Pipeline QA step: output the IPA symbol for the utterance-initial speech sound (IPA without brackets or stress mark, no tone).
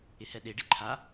ɪ